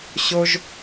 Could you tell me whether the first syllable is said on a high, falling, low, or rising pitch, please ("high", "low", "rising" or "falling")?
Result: high